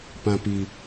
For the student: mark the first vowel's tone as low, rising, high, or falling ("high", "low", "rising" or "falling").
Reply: high